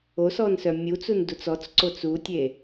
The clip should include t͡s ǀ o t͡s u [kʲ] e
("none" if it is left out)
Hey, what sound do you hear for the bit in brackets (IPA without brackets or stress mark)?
tʲ